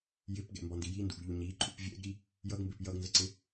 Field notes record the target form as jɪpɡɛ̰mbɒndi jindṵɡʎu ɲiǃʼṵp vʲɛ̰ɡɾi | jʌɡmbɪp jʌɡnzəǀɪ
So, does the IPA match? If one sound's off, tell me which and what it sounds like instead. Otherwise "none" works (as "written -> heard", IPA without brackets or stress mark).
none